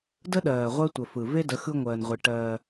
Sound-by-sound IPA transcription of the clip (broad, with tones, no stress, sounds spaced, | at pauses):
d ə˦ ɗ ɜː˨ ʁʷ ɜ˦ tʷ ə˨ f ɯ˨ v e˦ d ə˨˦ x ɯ˦ ŋʷ ɜː˨ n ʁʷ i˨ ʈ ɜː˦